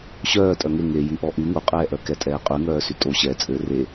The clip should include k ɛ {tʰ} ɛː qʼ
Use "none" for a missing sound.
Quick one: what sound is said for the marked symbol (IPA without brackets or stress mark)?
tʼ